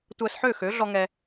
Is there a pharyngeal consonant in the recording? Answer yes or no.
yes